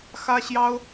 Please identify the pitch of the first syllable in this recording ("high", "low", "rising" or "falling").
high